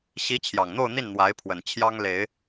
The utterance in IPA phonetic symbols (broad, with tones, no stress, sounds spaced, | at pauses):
ɕ i˧˥ t͡ɕʰ j ɑ˨˩ ŋ n̪ o˥˧ ʊ̯ n̪ i˥˩ n n̪ w a˧˥ ɪ̯ pʰ w ə˨˩ n t͡ɕʰ j ɑ˥ ŋ l e˨˩˦ ɪ̯